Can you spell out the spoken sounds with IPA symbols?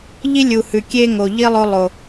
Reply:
ʎ i˦ lʲ u˨ h ʉ˨ kʲ e˦ ŋ o˨ ʎ i˦ lˠ o˧ lˠ o˨

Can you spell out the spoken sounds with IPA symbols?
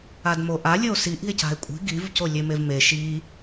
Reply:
a d m o ʔ a lʲ ə o̯ s i ʔ i̤ e̯ c a̤ e̯ kʷʼ i̤ ɡ i v c o lʲ e m e v m e ʃ i

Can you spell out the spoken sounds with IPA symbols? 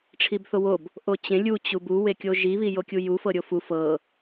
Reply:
ʈ͡ʂʰ i b θ o w o b | ʔ o t͡ɕ ẽ lʲ u t͡ɕ u b u w e kʲ o ʒ i β i j o kʲ u j u f ɤ ɾʲ o f u f ɤ

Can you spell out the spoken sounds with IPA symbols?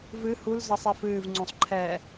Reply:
v ɨ h u l z ʌ sˤ ɛ f ɨː v ŋ͡ǀ ũ sˤ ǃʰ ɛ

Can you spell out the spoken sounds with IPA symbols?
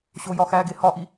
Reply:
ɕ o j ɒ x æ ɡ e h ɒ ʔ i

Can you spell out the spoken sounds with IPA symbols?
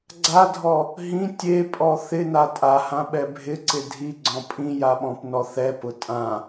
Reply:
ɡ͡ǀ a dʱ ɔ | ɦ ĩ tʲ e pʼ ɔ θ ɪ n a tʼ a h ã ɓ ɛ bʱ ɪ ǀ ɪ dʱ i ɡ͡ǀ ɔ̃ pʼ ĩ j a ɓ ɔ̃ p n ɔ θ ɛ p ʊ tʼ ã

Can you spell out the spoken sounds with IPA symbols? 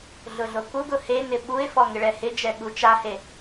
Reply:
ɮ ʊ ɮ o k u ɡ ʊ h e n ɪ ɓ u ɪ̯ f ɔ ŋ ɪ ɭ ɛ h ɪ d͡ʒ ɛ ɠ u t͡ʃ a h e

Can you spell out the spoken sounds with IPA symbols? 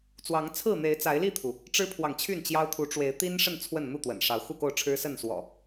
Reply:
t͡s w ɑ˨˦ ŋ t͡sʰ ɹ̩˥˨ n̪ e˨˦ ɪ̯ t͡s a˨˦ ɪ̯ l i˥˨ t̪ʰ u˩ | ʈ͡ʂ ɻ̩˦ pʰ w ɑ˨ ŋ t͡ɕʰ y˥˨ n t͡ɕ j ɑ˦ ʊ̯ t̪ʰ u˨˦ ʈ͡ʂ w e˨˦ ɪ̯ t̪ i˦ n ʂ ə˥˨ n t͡sʰ w ə˥˨ n n̪ u˥˨ t̪ w ə̰˨˩ n ʂ ɑ˨˦ ʊ̯ x u˥˨ k o˥˨ ʊ̯ ʈ͡ʂʰ ɻ̩˦ s ə˥˨ n s w ɔ̰˨˩

